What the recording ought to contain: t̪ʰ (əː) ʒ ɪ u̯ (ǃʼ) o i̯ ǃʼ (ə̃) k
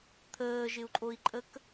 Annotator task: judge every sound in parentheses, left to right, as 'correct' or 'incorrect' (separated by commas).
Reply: correct, correct, incorrect